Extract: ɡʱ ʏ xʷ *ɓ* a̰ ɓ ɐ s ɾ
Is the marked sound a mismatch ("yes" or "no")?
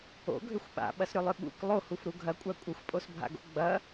no